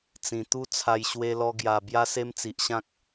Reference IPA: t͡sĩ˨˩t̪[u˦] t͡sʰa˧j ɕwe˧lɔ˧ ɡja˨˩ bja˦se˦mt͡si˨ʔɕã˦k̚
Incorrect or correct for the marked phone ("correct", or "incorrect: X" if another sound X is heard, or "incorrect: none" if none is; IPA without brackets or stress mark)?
correct